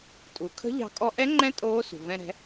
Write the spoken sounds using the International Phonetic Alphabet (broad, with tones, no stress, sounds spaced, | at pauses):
tʼ u˩ kʰ ə̤˧˥ ʎ ɑ̤˧ kʼ ɔ˧ ʔ ɛ˧˥ ŋ͡ǃ ɛ̃˧˥ tʼ oː˧˥ s ṳ˩ v ɛ̃˧ ɾ ɛ̤˩˧